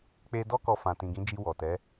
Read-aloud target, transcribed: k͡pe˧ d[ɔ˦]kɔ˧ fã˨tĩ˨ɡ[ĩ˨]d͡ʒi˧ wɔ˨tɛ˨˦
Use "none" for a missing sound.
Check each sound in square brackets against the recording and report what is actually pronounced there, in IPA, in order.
ɔ˦, ĩ˨˦

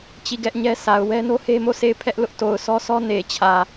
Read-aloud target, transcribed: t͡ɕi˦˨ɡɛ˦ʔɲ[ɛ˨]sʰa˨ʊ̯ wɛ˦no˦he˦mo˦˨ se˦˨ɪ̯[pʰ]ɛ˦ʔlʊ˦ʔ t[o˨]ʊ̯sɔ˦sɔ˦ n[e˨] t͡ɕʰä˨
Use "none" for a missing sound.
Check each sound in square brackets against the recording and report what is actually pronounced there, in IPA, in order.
ɛ˦, pʰ, o˨, e˨

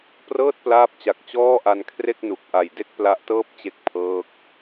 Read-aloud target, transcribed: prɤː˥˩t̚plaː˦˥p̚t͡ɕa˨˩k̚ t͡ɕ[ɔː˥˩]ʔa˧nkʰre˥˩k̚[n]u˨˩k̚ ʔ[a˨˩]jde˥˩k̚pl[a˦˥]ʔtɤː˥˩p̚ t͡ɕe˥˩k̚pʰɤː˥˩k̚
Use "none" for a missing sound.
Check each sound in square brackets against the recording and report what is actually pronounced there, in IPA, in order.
ɔː˥˩, n, a˨˩, a˦˥

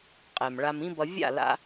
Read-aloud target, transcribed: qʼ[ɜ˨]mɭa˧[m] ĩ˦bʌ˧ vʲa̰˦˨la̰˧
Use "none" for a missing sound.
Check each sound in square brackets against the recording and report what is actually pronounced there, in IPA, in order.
ɛ˨, m

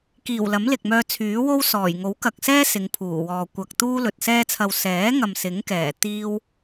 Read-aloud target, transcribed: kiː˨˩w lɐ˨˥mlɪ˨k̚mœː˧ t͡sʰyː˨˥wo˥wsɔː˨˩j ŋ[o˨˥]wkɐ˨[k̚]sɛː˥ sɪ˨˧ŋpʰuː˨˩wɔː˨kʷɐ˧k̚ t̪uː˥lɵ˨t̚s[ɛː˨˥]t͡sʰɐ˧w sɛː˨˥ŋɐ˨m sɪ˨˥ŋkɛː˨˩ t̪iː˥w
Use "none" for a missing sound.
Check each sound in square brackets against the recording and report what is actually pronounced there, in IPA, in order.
o˨˥, k̚, ɛː˥

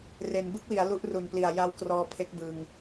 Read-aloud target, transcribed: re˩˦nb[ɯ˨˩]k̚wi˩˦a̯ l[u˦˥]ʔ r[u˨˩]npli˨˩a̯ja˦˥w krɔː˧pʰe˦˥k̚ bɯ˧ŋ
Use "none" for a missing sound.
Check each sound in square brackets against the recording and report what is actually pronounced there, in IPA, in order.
ɯ˥˩, u˦˥, u˨˩

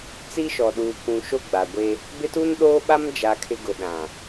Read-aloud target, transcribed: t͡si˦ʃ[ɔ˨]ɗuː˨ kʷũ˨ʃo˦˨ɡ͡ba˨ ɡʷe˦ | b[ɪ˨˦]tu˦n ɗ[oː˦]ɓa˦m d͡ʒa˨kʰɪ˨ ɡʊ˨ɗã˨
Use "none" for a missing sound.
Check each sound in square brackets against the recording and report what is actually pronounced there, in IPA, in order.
ɔ˨, ɪ˦, oː˦

